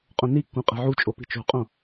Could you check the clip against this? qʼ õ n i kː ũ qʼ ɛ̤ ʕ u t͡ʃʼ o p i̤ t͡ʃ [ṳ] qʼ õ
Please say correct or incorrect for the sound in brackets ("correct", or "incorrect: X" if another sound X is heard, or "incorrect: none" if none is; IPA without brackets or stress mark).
incorrect: o̤